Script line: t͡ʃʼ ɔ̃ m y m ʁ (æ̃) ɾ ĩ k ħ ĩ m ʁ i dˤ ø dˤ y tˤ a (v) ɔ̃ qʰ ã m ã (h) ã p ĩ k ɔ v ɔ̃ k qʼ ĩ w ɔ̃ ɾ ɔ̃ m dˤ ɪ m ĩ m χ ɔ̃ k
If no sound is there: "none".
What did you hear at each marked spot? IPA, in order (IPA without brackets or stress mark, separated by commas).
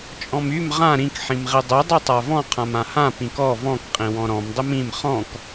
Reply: ã, v, h